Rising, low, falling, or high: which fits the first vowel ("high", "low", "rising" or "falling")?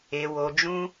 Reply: low